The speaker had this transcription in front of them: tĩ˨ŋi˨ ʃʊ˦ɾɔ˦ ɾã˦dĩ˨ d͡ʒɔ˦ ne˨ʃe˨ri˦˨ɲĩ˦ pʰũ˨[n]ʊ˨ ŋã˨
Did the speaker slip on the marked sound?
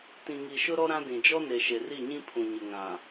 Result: yes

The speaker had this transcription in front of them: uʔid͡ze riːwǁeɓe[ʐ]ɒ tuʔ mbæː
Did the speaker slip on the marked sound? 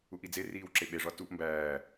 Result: no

